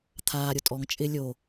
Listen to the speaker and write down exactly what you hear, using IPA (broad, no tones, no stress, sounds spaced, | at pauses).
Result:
t̪ʰ aː ɾʲ o tʼ ɔ ŋ t͡ʃʼ ɪ lʲ o